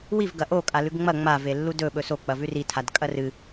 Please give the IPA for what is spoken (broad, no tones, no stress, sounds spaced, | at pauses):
w i v ɡ ɐ ʔ o kʼ a l ʉ ɡ ŋ͡m ɐ ŋ͡m a v e lː u d ɵ ɓ ɵ s o k͡p ɐ v ʉ r i tʰ a d kʼ ɐ r ɨ